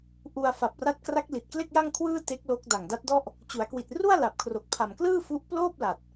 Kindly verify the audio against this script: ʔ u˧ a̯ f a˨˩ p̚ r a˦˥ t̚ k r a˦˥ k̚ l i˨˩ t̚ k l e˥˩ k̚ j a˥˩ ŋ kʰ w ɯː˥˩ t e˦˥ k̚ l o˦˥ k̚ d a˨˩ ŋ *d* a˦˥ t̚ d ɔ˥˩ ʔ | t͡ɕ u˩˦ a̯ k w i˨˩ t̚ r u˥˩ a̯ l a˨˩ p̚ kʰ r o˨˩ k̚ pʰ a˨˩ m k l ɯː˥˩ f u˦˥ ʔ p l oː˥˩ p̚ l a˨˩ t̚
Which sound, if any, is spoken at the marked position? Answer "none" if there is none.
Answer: d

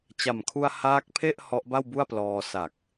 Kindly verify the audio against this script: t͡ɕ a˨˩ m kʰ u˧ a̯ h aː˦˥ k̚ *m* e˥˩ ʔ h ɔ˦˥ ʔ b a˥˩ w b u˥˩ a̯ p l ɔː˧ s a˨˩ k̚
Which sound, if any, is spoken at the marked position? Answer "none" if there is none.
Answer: pʰ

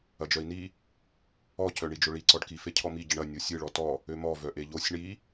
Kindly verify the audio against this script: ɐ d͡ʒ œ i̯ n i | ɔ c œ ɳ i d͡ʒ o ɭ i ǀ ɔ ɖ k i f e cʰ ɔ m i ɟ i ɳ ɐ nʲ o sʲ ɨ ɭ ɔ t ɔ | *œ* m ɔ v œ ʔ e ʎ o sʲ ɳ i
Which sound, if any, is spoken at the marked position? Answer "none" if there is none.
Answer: ø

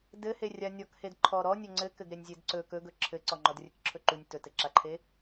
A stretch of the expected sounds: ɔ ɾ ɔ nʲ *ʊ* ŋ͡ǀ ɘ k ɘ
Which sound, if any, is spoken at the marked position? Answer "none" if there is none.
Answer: ɵ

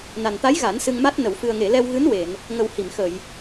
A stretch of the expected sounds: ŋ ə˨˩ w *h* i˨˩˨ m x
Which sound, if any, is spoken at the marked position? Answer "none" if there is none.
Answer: h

